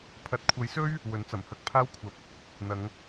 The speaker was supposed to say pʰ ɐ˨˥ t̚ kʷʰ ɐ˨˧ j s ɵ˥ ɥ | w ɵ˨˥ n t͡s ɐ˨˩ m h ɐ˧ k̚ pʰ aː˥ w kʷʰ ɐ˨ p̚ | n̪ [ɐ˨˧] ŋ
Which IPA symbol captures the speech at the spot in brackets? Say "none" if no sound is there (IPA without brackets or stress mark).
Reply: ɐ˨˧